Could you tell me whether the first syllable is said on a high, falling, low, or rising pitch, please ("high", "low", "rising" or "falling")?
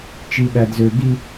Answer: low